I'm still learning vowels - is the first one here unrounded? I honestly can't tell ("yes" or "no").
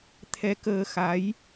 yes